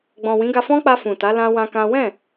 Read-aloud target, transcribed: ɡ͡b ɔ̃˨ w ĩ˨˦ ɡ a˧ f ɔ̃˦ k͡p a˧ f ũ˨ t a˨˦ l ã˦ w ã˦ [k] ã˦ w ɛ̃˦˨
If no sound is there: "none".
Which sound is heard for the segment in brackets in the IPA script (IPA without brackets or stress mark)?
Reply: k